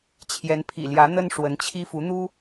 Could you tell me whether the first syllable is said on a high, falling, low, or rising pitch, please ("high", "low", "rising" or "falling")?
rising